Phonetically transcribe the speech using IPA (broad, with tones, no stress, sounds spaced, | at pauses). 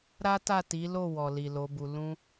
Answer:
ɾ a˦ t a˦˨ t i˨˦ l o˦˨ w ɔ˨ l i˨ l o˨˦ b u˧ l ũ˦